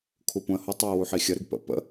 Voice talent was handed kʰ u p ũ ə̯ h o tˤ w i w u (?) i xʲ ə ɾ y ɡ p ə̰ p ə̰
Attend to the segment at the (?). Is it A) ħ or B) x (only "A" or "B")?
A